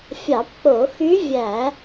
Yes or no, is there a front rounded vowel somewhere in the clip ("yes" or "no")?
yes